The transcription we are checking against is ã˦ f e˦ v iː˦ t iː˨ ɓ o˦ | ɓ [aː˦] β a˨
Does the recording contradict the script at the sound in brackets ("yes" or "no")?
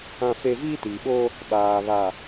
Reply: yes